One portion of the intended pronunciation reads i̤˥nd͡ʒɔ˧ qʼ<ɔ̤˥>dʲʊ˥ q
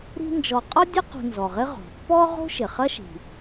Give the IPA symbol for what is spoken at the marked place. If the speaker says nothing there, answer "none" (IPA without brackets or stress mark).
ɔ˥